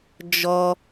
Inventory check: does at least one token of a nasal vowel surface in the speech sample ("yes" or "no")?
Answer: no